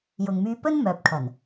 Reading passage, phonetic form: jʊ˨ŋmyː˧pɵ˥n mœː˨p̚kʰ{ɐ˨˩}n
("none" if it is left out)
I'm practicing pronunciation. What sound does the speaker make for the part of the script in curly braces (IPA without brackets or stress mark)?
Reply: ɐ˨˩